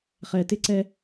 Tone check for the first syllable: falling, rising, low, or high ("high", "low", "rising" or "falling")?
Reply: low